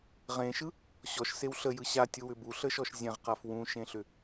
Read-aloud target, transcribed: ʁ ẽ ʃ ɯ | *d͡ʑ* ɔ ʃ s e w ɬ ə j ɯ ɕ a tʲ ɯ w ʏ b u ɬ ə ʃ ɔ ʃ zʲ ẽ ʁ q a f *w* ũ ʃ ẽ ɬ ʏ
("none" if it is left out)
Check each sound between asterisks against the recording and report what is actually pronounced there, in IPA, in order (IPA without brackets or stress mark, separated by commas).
ɕ, w